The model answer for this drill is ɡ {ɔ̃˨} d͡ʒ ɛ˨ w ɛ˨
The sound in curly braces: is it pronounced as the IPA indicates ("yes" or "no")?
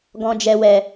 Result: yes